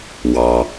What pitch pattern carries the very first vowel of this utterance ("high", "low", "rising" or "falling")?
low